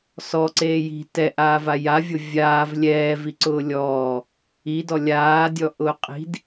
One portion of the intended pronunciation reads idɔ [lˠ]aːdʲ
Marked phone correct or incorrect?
incorrect